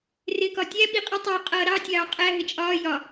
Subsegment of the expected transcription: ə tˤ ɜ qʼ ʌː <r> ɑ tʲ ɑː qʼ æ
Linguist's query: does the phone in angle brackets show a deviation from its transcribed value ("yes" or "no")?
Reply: yes